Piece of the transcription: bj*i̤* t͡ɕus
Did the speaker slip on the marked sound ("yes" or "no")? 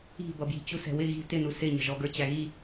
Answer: no